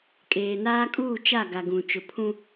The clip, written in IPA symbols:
kʼ eː˨ n aː˦ kʼ uː˦˨ t͡ʃ a˦˨ ɡ a˨ ɡ ũ˨ t͡ʃ ʊ˨ pʰ ũ˦

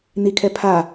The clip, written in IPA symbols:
n i kʰ ɛ pʰ a

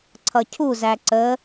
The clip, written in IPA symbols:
ǀʰ ʌ cʰ u z æ ǀ ə

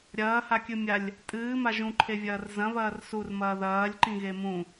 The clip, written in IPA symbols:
ɾʲ ɐː h a kʲ ɨ mʲ a lʲ | tʼ ɨː m a ʒ ũ ǃʰ e vʲ ɐː r z ɐ̃ β ɐː r s u r m ɐː ð ɐː lʲ ǃ ĩ ɣ e m ũ

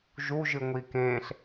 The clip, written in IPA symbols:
ʒ u ʒ ɨ ŋʷ i k ẽ ɬ

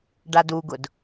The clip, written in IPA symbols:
ɖ a d u ɡ ʊ d

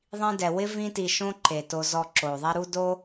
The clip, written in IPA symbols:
ðˤ ĩ˦ d ɛ˧ w ɪ˦ v ĩ˦ t i˧ ʃ õ˦ ǃ e˨ t o˧ z ɔ˧ ǁ o˨ ðˤ ɛ˦ ɾ u˦ d o˦

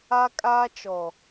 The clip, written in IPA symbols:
a˦ kʼ aː˦ t͡ʃ ɔ˨

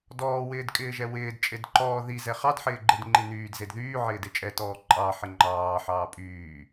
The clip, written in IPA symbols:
d ɔː w ɪː d kʼ ɪː ʒ ɛ w ɪː d t͡ʃʼ e d ǃ ɔː ð i z ɛ χ ɑ d ħ ɪː ɡ͡ǃ e d ŋ͡ǃ i n yː d z e d ð yː ʕ ɪː d e t͡ʃʼ ɛ t ɔː ǃʼ ɑ ħ ɪ ŋ͡ǃ ɑː ħ ɑː pʼ yː

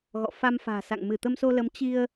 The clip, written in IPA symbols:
ɣ ɔ̰˧˨ f a˧ m f a̤ː˨˩ s a̰˧˨ ŋ m ɨ˧˩ t̪ ə˧ m s o˧ l ə˨˦ m t͡ɕ i˧ ə̯

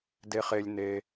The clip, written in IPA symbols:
d e˨ χ e˨ lʲ n e˨

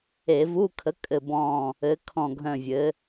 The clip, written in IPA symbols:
e˧˩˧ v u˧˥˧ kʰ ə˨˥ kʼ ɘ˦˨ b ɔ̃˦˨ | ɘ˨˥ kʰ ɔ̃˦˨ ɡʱ œ̃˦˨ vʲ ɘ˨˥

